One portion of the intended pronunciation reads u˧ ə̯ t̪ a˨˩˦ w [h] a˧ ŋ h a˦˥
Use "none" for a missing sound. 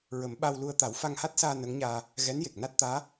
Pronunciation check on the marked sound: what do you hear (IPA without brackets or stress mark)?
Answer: f